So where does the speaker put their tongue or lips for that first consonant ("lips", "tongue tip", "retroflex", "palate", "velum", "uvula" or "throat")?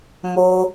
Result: lips